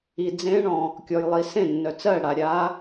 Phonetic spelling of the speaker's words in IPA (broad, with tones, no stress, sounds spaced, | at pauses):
i˩ d͡z ẽ˧˥ ɳ ɔ̃˩ | kʲ ɔ˩ j lˠ i˩ s ẽ˥˩ nː œ˩ t͡s ɜ˥˩ ɽ a˩ ɾʲ a˧˥